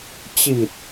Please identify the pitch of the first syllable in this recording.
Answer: low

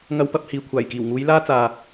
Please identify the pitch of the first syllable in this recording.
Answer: high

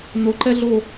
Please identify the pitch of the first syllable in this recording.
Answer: low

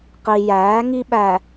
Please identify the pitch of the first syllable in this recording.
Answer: low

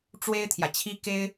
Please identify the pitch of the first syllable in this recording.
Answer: high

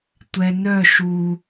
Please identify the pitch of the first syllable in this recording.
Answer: low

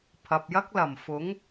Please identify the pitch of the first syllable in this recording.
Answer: low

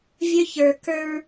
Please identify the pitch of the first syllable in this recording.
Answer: high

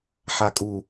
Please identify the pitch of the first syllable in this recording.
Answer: low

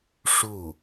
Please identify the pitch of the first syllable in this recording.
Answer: falling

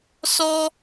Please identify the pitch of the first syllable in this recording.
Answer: high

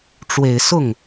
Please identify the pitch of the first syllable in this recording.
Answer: low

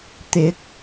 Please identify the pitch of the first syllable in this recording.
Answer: rising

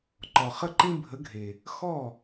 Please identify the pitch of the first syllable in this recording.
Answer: low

